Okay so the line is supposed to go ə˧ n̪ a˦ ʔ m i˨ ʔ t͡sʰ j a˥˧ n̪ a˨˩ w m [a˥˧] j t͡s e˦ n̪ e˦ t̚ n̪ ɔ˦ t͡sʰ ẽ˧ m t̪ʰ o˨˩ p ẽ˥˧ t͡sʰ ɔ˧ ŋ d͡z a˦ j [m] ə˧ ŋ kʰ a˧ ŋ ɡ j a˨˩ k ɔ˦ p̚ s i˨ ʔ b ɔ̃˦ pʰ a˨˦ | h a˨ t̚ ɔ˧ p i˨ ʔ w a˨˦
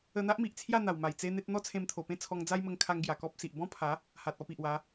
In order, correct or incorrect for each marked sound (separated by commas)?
incorrect, correct